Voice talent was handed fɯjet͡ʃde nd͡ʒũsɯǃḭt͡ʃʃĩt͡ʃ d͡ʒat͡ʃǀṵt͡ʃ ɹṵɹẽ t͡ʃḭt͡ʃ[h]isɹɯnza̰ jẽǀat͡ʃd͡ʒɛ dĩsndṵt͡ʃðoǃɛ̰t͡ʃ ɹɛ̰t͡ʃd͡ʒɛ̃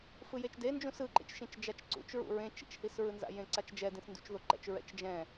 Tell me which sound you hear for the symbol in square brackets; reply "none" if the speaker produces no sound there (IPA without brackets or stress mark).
h